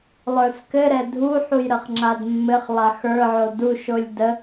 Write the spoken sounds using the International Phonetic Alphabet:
lˠ ə˞ s k ɘ ɾ ɛ dʱ u ħ u j ɾ ə χ ŋ͡ǁ a d mː ɘ χ lˠ a x ə˞ ʕ o d u ʃ o lʲ d ə

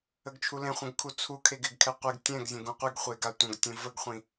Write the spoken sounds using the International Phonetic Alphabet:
ə ɡ t͡ʃʰ u l ẽ χʷ ə̃ ɡ kʰ u t͡sʰ u kʰ e ɡ ɪ ɡ kʰ ɛ qʷ i ɡ tʲ ɛ̃ ɡ zʲ ə̃ ɡ ũ qʷ i ɡ χʷ e ɡ a tʷ ə̃ ɡ tʲ ə̃ v ə ɡ χʷ ĩ

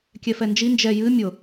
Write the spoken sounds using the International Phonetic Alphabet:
kʲ ɛ f ɛ n d͡ʒ i n d͡ʒ ɛ j ɨ mʲ ʊ

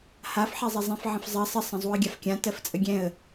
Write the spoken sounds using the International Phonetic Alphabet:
h a f ħ ɛ zˤ ə zˤ ɛ̃ f ʕ ə̃ f zˤ ɜ sˤ ə sˤ ə̃ zˤ u ə̯ ɡʲ a f kʲ ã t ɜ f t͡sʼ ə ɡʲ ɛ̃ ə̯

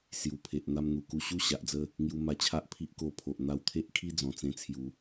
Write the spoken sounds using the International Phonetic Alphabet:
s j u˨˩ pʰ e˨ ʔ n̪ a˧ m n̪ u˨˩ k u˧ ɕ u˦ ɕ a˨ ʔ d͡z ə˦ | ŋ j u˧ m a˧ t͡ɕʰ a˦ ʔ pʰ i˦ ʔ k o˧ pʰ o˨ ʔ n̪ a˧ w t̪ʰ e˦ ʔ kʰ i˦ d͡z ɔ̃˨˩ t͡s ẽ˧ t͡sʰ j u˨˦

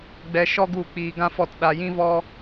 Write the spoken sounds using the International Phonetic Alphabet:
ɡ͡b ɛ˧ ʃ ɔ˦ ɡ u˦˨ k͡p iː˧ ɡ ã˦ f ɔ˦˨ t ɗ a˧ j ĩ˦ v ɔ˦

